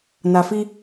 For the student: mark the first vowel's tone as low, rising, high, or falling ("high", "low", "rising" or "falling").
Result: low